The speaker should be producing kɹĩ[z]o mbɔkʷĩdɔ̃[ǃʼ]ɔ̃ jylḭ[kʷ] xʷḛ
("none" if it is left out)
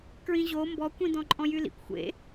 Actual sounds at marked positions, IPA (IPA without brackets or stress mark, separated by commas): ʑ, ǃʼ, kʷ